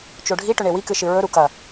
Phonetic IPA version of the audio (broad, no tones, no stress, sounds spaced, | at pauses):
t͡ʃ o ɖʱ i ʈ ɵ ɳ e w i k ɨ ʃ ɨ ɹ ɵ ɾ u k ɐ